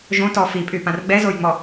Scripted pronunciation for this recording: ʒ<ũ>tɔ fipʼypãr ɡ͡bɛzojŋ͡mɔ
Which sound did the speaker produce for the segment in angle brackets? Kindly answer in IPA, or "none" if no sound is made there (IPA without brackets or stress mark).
õ